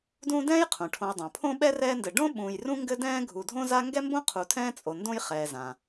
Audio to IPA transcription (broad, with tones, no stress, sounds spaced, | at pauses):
d ũː˦ d ɛ̃ː˥ j qʰ ũ˩ ʈʰ õ˨ j dˤ õ˩ pʰ õ˥ ɓ ɛ˥ r ɛː˦ n d ɘ˨ ɖ õ˥ ɓ ũː˨ j r ũ˥ ŋ ɡ ɘ˦ d ɛ̃ː˦ ɡʱ u˨ dʱ õ˥ z a˥ ŋ ɡ ɛ˥ m b õ˥ qʰ u˨ tʰ ɛ̃ː˦ t͡sʼ o˨ n d õ˥ j χ ɛː˨ z ã˩